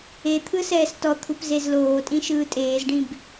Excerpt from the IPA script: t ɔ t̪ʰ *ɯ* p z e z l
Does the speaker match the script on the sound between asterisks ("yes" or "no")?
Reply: no